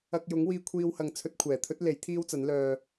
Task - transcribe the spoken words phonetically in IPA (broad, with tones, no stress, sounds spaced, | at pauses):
ɐ˧ k̚ j ʊ˨˥ ŋ w iː˧ kʷʰ iː˧ w h ɐ˨ ŋ t͡sʰ ɵ˧ t̚ kʷʰ ɛː˨˩ t̪ʰ ɵ˥ t̚ l e˨˥ j t̪ʰ iː˥ w t͡s ɐ˨˥ n l œː˧